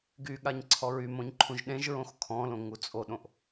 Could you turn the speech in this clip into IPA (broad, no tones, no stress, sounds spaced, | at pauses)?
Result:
ɡ y ɠ a ɲ ǀʰ ɔ ɹ y m õ ɲ ǃʰ ũ ʒ ɗ ẽ ʒ ɹ õ x kʰ ɔ̃ l õ ŋ u t͡sʼ o ɗ õ ʔ